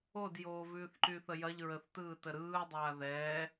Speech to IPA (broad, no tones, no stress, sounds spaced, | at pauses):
o d j oː v ʉː θ ǃ y θ ə j ɐ ʎ ɹ ə θ t ɯː t ə ɾ ɯː dˤ aː ð ɛː